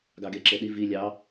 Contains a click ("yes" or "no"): yes